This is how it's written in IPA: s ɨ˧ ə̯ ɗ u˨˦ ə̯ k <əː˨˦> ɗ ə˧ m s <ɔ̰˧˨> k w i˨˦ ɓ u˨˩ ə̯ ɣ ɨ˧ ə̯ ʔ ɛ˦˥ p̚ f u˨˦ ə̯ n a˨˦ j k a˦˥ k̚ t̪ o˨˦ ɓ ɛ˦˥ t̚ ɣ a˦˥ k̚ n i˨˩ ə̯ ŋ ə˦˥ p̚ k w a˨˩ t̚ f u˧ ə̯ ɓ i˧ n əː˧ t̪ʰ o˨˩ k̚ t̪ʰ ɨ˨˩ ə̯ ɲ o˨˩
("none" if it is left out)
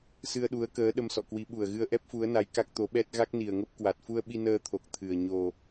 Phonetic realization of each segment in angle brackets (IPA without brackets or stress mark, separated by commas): əː˨˦, ɔ̰˧˨